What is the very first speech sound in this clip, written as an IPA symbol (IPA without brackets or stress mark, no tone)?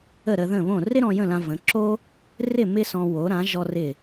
ə